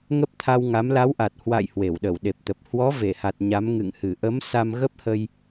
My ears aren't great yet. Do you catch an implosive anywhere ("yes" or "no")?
yes